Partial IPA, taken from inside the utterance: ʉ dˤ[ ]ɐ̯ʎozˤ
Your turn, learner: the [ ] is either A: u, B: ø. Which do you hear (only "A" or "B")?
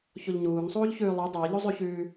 B